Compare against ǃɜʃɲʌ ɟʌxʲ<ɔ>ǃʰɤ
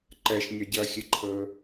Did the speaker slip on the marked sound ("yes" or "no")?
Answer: yes